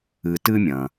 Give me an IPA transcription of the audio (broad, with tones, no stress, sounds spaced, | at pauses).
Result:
ɨ˨ t ɨ˦ mʲ ɐ̃˩